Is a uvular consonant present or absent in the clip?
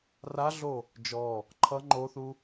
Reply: absent